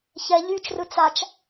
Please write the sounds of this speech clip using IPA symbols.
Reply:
ç ɛ ʎ y t͡ʃ r ɯ t͡s a t͡ʃ

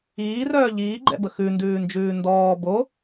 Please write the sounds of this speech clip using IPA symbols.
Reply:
iː r œː ʎ iː ɡ͡ǃ ɛ̰ b ə x ʉ n d ʉː n d͡ʒ ʉː n d ɔː b o

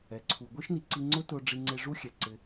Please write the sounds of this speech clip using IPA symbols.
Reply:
ɛ˩ ǀʰ u˩ ɡʷ i˥ ʃ n i˩ ǀ i˧ ŋ͡ǀ ʊ˥ t ʊ˧ ɖ͡ʐ i˧ ŋ͡ǀ e˧ ʐ u˥ xʲ ɛ˩ ǀ ɪ˩

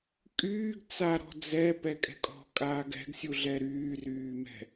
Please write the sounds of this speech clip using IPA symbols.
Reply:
kʼ yː ɡ t͡s a ɾ ɔ̤ d͡z ɛ p ɛ kʼ ɛ̤ kʼ ɔ̤ kʼ aː ɡ ɛ̤ ɡ sʲ u ɮ ɛ ɾ yː r yː m ɛ̤

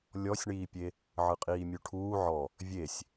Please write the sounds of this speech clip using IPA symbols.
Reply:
lʲ ɔ sʲ ɳ iː pʲ e | ʕ ɯ qʼ iː mʲ u ʈʰ uː ʕ ɔ | vʲ e sʲ

